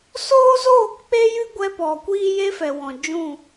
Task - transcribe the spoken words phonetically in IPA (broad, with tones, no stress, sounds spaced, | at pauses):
s oː˦ z oː˦˨ k k͡p e˦ j ɨ˦ ɡʷ ɛ˧ p ɔ˨ kʷ iː˦ j e˦ f ɛ˨ w ɔ̃˨ d͡ʒ ũ˦˨